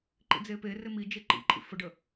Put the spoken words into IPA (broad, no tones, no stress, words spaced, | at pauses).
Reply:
ǃḭd͡zeperɪ mi d͡ʒeǃḭǃʼḭ fəɖə